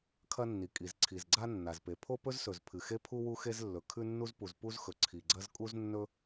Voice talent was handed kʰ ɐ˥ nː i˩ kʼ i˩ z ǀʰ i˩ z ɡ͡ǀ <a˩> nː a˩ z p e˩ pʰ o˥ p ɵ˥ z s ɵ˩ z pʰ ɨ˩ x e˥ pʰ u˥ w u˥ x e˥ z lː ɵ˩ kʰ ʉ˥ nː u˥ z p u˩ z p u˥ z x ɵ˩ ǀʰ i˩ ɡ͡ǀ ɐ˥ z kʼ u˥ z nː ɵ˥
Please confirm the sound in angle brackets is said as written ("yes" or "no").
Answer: no